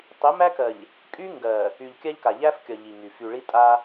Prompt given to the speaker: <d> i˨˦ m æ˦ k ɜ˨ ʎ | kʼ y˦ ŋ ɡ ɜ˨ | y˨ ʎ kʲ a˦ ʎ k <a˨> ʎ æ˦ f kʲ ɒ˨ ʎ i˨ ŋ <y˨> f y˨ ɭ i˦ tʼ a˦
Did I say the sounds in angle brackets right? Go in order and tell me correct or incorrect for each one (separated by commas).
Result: incorrect, correct, correct